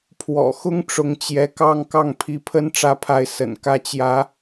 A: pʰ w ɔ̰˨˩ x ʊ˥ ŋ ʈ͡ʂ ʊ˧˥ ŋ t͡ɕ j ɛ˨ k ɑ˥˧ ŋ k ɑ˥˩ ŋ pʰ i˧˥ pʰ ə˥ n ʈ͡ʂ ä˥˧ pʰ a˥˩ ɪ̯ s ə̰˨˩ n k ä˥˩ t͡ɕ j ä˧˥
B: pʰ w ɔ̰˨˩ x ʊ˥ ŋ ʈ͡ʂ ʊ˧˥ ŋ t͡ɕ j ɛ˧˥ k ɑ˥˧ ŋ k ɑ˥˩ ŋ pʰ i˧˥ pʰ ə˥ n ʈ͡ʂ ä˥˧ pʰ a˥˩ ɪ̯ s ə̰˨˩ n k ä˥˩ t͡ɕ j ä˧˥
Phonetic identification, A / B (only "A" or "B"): B